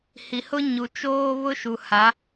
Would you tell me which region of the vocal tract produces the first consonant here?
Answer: throat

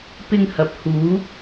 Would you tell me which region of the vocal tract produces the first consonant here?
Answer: lips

